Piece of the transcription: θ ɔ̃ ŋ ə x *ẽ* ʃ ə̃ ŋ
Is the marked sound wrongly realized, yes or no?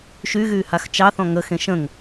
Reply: no